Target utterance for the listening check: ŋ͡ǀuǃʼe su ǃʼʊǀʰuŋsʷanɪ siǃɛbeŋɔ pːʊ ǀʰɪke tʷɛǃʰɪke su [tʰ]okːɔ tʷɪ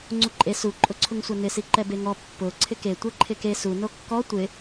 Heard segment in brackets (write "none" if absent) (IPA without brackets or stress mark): n